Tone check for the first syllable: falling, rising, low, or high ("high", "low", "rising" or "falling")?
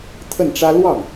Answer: falling